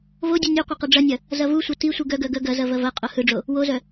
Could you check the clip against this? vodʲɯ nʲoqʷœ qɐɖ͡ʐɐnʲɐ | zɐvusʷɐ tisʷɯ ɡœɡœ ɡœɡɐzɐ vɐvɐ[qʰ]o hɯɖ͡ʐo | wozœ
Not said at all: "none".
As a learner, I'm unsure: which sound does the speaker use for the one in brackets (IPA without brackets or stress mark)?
qʼ